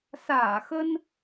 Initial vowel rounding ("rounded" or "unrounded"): unrounded